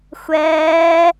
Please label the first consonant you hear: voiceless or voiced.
voiceless